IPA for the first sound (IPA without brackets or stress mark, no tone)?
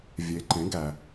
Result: vʲ